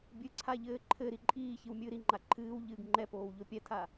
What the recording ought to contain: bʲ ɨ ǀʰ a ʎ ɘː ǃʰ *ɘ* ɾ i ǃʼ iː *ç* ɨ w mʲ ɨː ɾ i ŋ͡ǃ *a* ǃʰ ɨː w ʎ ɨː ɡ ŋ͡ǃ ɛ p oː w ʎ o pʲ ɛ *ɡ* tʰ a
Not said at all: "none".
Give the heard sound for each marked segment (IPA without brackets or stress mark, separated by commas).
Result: ɘ, ç, a, none